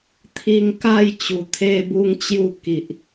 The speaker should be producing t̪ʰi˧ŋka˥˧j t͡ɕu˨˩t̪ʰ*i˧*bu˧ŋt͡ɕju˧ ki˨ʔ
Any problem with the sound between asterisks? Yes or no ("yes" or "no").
yes